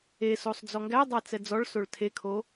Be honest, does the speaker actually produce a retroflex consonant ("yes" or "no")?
yes